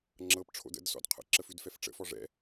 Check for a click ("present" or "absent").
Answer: present